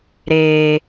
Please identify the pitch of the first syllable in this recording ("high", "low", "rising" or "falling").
low